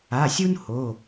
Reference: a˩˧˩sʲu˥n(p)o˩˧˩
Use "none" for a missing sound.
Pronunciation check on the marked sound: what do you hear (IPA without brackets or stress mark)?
h